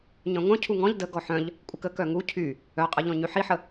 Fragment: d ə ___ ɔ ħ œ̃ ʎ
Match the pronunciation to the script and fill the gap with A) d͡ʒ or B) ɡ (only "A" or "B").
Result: B